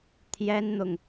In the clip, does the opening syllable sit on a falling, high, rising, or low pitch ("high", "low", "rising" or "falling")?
high